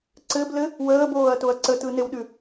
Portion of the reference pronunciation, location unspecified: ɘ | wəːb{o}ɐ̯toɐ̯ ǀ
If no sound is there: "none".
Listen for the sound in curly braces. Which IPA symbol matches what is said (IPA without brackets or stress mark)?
oː